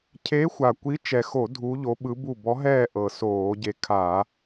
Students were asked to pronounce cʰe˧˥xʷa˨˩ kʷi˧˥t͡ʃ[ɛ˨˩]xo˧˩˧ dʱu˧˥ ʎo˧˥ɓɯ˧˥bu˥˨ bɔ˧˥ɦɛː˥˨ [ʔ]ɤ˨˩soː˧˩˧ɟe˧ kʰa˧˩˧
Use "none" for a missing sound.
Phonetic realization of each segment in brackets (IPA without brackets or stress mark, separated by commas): ɛ˨˩, ʔ